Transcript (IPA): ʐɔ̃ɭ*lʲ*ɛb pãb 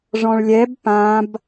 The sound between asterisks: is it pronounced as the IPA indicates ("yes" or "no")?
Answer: yes